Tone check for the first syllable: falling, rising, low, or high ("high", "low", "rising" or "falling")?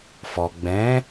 low